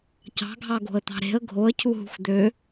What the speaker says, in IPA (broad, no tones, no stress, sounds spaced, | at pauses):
c ɑ̤ ɡʱ ɑ ɡ o̤ ə̯ t̪ ɑ̤ ɾ e̤ ə̯ ɡʱ o ə̯ cʰ u ɦ ṳ x d̪ ø